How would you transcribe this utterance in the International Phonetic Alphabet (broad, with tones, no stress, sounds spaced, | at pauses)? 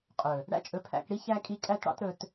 qʼ ɵ˨ | ɽ æ̰˦ t͡ʃʼ ɵ˧ pʰ æ̰˧ k ɽ i˦ ç æ˦ kʼ i˦ kʼ æ˦ t ɽ ɑ̰˦ t ɾ ɵ˧ t